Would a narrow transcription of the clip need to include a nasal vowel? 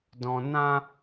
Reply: yes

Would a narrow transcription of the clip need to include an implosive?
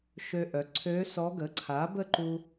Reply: no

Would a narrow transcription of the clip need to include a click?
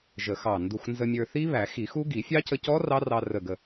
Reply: no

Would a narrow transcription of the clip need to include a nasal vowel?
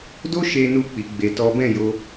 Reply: yes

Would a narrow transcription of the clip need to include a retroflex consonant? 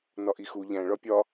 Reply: yes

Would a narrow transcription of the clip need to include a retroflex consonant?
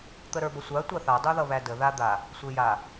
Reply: no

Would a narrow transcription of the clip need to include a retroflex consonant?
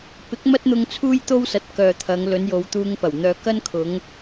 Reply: no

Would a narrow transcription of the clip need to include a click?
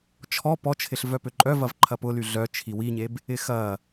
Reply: yes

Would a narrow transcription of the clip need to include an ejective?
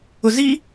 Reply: no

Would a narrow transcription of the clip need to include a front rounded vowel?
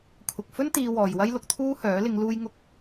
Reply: yes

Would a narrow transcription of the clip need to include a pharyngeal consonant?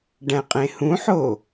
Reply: yes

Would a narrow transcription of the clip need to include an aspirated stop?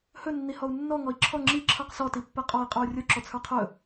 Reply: yes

